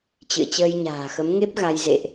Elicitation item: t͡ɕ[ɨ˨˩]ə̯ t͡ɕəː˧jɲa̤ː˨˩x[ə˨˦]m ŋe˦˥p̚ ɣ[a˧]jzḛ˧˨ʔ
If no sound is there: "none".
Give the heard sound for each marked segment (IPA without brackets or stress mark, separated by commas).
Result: ɨ̰˧˨, ə˨˦, a˧